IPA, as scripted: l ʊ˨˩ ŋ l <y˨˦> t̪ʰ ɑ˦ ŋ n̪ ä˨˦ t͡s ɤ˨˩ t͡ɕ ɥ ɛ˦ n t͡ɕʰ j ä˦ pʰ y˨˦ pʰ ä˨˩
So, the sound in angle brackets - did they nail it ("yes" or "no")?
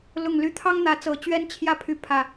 yes